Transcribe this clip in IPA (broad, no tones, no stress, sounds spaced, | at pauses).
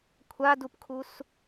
kʷʰ a d u p kʰ u s